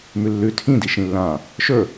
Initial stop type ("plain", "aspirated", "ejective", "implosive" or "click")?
aspirated